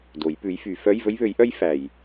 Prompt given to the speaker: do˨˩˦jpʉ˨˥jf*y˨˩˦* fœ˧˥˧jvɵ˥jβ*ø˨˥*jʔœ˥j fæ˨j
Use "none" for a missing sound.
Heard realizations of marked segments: y˨˩˦, ø˨˥

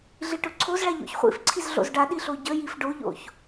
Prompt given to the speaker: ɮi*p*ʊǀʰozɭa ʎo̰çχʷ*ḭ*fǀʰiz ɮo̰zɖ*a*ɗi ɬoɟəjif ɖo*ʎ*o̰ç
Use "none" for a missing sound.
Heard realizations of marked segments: ʈ, ḭ, a, ʎ

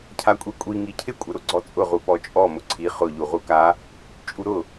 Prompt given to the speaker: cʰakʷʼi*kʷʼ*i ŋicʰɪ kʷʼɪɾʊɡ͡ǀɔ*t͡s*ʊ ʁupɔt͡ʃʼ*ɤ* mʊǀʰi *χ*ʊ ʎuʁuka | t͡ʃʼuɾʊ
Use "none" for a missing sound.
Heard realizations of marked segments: kʷʼ, t͡sʼ, ɔ, χ

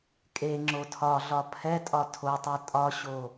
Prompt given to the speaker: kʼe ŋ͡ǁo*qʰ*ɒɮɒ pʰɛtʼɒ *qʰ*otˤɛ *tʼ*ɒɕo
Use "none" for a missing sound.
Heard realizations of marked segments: tʰ, tʰ, tʼ

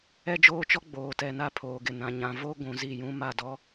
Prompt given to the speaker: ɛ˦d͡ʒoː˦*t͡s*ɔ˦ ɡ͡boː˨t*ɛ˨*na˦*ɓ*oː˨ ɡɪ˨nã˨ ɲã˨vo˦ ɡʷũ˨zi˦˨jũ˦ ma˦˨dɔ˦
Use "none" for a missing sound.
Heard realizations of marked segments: t͡ʃ, ɛ˨, pʰ

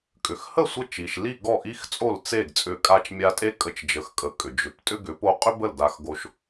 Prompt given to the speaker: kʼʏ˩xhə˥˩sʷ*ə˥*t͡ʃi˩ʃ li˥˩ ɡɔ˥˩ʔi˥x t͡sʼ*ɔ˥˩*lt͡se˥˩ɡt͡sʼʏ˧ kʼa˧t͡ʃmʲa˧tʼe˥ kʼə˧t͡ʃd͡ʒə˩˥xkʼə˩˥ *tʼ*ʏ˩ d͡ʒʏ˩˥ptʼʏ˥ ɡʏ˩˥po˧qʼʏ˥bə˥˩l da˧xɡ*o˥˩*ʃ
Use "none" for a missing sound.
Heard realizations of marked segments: ə˧, o˥˩, kʼ, o˧

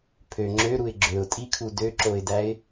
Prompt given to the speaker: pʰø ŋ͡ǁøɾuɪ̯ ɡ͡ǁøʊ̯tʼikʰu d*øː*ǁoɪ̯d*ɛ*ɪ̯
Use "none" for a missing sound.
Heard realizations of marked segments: ø, æ

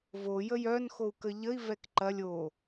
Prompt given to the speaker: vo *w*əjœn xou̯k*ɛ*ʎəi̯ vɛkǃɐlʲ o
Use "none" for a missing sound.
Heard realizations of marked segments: j, ə

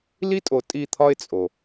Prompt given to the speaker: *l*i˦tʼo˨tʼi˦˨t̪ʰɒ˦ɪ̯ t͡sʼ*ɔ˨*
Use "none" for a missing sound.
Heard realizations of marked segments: l, o˨

